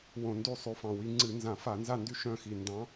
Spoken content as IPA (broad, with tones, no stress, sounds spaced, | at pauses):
w õ˧˩˧ n d y˦˨ sˤ y˨˦ f ɑ̃˨˩ w i˨˦ ŋ͡ǀ ɨ˧˩˧ n z ã˧˩˧ f a˧˩˧ n z a˦˨ n d y˦˨ ʃ œ̃˦˨ x i˨˩ n d ɑ̃˨˦